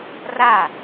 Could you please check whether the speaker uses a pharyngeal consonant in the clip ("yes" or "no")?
no